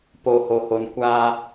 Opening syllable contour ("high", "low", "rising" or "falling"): low